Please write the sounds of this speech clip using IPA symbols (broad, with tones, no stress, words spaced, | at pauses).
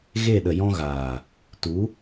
ɣe˦˨ ɗə˨jɔ̃˧ɣaː˨ | tu˨˦